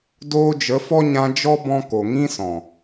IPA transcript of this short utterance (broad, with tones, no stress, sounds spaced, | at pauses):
d oː˧ d͡ʒ ə˨˦ f ɔ˦ ɲ ã˧ d͡ʒ ɔ˦ b ɔ̃˧ k o˨ ŋ ĩ˦ s ɔ̃˨